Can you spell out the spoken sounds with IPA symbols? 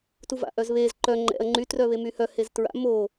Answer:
t u v a̰ ʔ œ z β e z ǃ œ ŋ͡ǃ ɛ̰ ɐ̯ ŋ͡ǃ y t r œ β e m y h œ h e z t ɹ a̰ m o

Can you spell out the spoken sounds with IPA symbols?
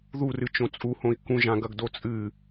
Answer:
ð u r ɨ t͡ʃ õ t͡sʼ u h õ i̯ k ũ ʒ ã ɡ ɐ ɡ d o t͡sʼ ɨ

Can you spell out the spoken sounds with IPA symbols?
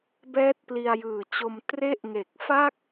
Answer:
b ɛː˦˥ t̚ p l i˧ a̯ j ɯː˨˩ t͡ɕ o˧ m t r e˦˥ ʔ ŋ e˨˩ k̚ f a˥˩ k̚

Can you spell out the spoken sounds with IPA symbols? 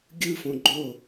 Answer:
ɡʲ ɯ f õ ɡ͡ǃ o

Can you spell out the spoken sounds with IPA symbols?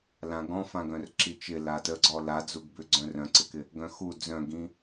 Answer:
l ã ɡ ɔ̃ f ã ɡ œ̃ r ǁ i t͡ʃ ɪ l a t ə ɡ͡ǀ ɔ l a d͡z u ɡ b ʏ ɡ͡ǀ œ̃ r œ̃ ǀ ɪ k ɪ | ɡ œ̃ x u d͡z œ̃ ɡ ĩ

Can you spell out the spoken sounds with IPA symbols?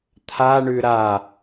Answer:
t̪ʰ a ɳ ʉ ɾ a

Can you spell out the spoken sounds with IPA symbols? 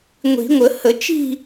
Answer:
ŋʷ i̤˨˩˦ ŋʷ ə˨˩˦ h ə˨˩˦ t͡ʃ i̤˥˧

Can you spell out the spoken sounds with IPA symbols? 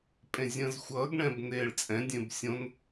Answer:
pʼ ẽ zʲ ə̃ː z xʷ ʌː ɡ ɳ ɛ̃ː b n eː ɭ t͡sʼ ɛ̃ dʲ ẽ b sʲ õ n

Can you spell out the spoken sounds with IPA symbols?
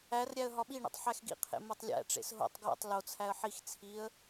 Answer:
æ r ɾʲ æ ə̯ ɦ ɒ ɓ i ɳ ḭ tˤ ħ æ x ɡ ḭ qʰ ḛ m o tˤ lʲ æ̰ ʈ͡ʂ ḛ s ɦ o̰ tˤ ɡ w o̰ tˤ l o t͡sʰ æ ə̯ ħ i x t͡sʰ i ə̯

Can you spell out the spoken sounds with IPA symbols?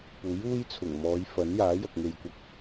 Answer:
p uː˨˥ j uː˥ j t͡sʰ ʊ˨˩ ŋ m ɔː˨˧ j f ɐ˨˥ n j aː˨˥ j ɐ˨ k̚ ŋ e˨ j kʷ ɐ˧ k̚

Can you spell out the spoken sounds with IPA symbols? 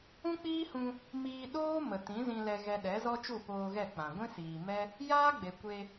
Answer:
ũ˦ k͡p iː˦ h ũ˧ | m iː˧ ɗ oː˦ m ə˨ t ĩ˨˦ z ĩ˧ l ɛ˧ ɣ ɛ˧ ɗ ɛ˨˦ z ɔ˦ t͡ʃ u˦˨ p oː˧ ɣ ɛ˦˨ k͡p ã˨ ɡʷ ĩ˦ s iː˨ m ɛ˦ | j aː˦ ɡ͡b e˨ kʷ e˧

